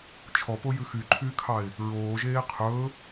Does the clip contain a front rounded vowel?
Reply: yes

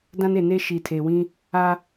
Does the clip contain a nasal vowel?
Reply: yes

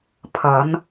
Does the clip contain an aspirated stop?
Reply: yes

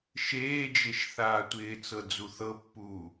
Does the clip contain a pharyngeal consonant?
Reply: no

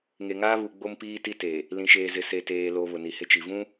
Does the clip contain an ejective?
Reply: no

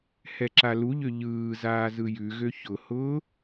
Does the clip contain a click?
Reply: yes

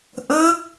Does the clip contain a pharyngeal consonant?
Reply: no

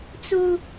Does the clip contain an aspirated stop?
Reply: no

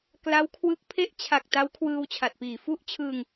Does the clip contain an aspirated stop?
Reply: yes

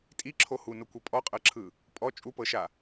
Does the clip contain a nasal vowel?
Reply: no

